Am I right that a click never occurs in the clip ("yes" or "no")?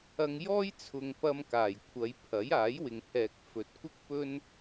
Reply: yes